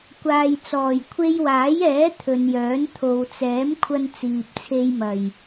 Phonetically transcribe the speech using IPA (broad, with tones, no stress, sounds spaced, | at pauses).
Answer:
kʷ aː˨ j t͡s ɔː˨˩ j kʷʰ e˧ j w aː˨˥ j ɛː˨˥ t̪ʰ ɵ˨ n j œː˨˥ n t̪ʰ o˨ w t͡s ɛː˨˥ m kʷʰ ɐ˧ n t͡s iː˨ p̚ t͡sʰ e˧ j m ɐ˨˩ j